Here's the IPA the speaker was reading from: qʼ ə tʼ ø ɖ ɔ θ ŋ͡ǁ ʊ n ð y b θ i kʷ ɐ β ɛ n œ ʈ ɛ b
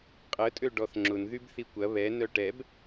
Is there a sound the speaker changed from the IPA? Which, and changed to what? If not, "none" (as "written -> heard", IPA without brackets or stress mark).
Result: none